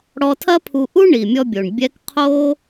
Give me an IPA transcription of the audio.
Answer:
ɽ ɔ˧ tʰ ɐ˥ pʰ u˧ ʔ u˥ ɳ i˩ mʲ ɔ˧ bʲ o˩ ɳ bʲ ɛ˧ k qʰ o˥

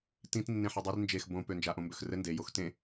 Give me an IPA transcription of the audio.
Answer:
t ĩ t nː ẽ ħ e dˤ i r n d͡ʒ e x b õ p ø n d͡ʒ a ʔ õ m b ø x r ɘ n d e j o x t ẽ

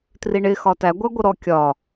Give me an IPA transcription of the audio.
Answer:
t r i ɳ ɪ x ɒ t æ ɡʷ æ ɡʷ ə ɾ ɔ kʲ ɒ

